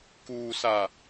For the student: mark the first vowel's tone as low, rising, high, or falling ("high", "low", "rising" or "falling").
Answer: low